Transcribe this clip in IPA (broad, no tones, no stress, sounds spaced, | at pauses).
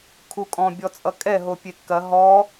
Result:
kʰ u kʼ ɔ̃ bʲ ɔ t͡sʼ ʌ kʼ ɛ ɦ o pʲ e kː ɐ ɦ ɔ